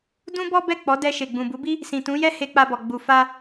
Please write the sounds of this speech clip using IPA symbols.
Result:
dũ˦bɔ˦bɛ˦˨ k͡pɔ˨˦dɛ˧ ʃe˨ɡ͡bũ˨bu˨˦bi˦ | sĩ˨tũ˨˦jɛ˦ he˧k͡pa˧bɔ˨ ɡ͡bu˨fa˧

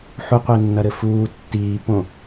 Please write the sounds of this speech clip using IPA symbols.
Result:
ħuqʷenːɐɾɘ fuː tːiːpõ

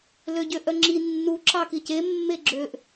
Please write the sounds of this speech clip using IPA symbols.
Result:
løɟøʔœŋ͡ǁi nːu ǁɑkice mːeɡ͡ǁøʔ

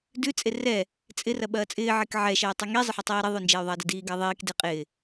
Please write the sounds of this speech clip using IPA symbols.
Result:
dʉ t͡sʼerɛ | t͡sʼɪ rɐɓɐːt͡sʼɪː ʕekʕɛ ʃɛːtˤʉŋi zˤɪħʉtˤiːɾe ðˤʉnd͡ʒɛːy̯ðˤɐːdɪ diːɡɐːðˤiːk deqʼɪː

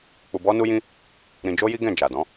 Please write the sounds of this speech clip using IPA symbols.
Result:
k͡pu˧bɔ˦nu˦jĩ˦ | ɾĩ˧d͡ʒo˦ji˦ɡɛ̃˦˨ d͡ʒa˨dɔ̃˨˦

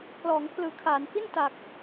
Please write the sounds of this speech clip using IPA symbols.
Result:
klɔː˩˦ŋpʰlɯː˩˦kʰaː˩˦nfi˥˩n ta˨˩k̚

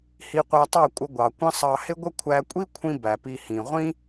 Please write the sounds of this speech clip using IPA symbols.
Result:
hi˧qʷæ˧tˤɑ˦˨kʷʼə˧ ɡʷɑ˨kʷə̃˦ sˤɑ˧hɪ˦ɡʷə˦ kʷʰæ˧kʷʼi˦kʷʰĩ˧ bæ˨pi˧hĩ˨ ʁʷĩ˦

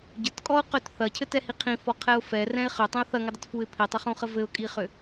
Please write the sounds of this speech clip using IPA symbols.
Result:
ɟətkʼɔʊ̯qøt θɐcʰɘtɛhi qʰĩfɔqʰɛʊ̯ fɛrɛ̃ɪ̯ χʏtˤĩʊ̯ θɐŋɘdˤətfuɪ̯ pʰitˤʏχũχə vɘʊ̯kʼiχʏ

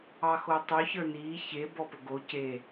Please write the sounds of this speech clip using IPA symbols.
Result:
ɑxotˤɵ çə˞niː çebɔ pɵɡo ce

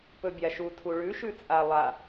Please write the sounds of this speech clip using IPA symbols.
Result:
pɵbʲaʃu tʰuɭʉ ʃʉt͡sʼa lˠa

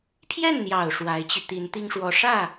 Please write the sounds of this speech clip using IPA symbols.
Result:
pʰjɛ˥˩nn̪jɑ˨˩ʊ̯ ʂwa˧˥ɪ̯t͡ɕy˧ t̪i˧˥nt̪i˥ŋʂwɔ˧˥ ʂä˥˩

